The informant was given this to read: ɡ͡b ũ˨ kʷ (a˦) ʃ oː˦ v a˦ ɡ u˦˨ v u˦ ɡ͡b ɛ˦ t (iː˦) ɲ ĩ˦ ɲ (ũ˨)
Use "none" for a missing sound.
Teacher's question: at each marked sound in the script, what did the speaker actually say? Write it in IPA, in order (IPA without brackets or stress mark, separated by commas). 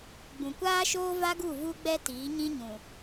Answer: aː˦, iː˨˦, ũ˨